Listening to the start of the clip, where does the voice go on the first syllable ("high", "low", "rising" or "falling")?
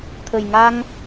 low